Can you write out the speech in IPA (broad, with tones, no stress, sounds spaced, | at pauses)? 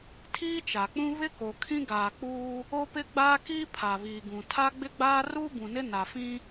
tʰ iː˦ t͡ʃ a˨ k͡p ũ˦ β ɪ˦ k o˨ kʰ ĩ˦ ɡ aː˨ k͡p uː˦ | o˦ p ɪ˦ ɡ͡b aː˦ k iː˦ pʰ a˨ β iː˨ ɡ ũ˨ tʰ a˦ ɡ͡b ɪ˦ ɡ͡b aː˦ r uː˦ b ũ˨ n ɪ˦ n a˨ f ĩ˦